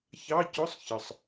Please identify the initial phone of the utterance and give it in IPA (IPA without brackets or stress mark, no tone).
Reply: ç